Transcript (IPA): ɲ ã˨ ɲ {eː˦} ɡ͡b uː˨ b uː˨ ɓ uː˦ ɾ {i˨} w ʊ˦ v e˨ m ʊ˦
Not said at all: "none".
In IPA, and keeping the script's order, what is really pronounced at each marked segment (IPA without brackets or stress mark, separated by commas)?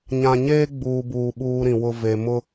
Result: eː˦, ĩ˨